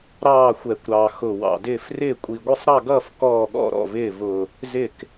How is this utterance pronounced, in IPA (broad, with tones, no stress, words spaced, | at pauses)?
ɾɑː˥˩xʷɛ˨˩kʷɾɑ˨˩ xʊ˨˩ wɑ̰˨˩dɪː˥˩f rɪː˥˩kʷʼi˨˩ ɡʷɪ˥˩sˤɾɑ˥˩ɡʌː˥˩f kɔː˥˩ɠɔ̰˥˩ɾɔ̰˥˩vɪː˥˩ vʊ˨˩ | zɪ˥˩k